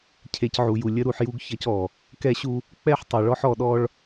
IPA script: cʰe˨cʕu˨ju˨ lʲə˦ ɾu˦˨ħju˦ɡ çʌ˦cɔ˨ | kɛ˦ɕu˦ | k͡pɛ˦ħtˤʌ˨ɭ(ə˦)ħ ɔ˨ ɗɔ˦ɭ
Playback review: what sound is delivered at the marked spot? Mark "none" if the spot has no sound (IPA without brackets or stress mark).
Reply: ɔ˦